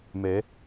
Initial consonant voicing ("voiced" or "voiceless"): voiced